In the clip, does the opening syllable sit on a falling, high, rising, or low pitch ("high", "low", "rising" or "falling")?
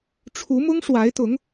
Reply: rising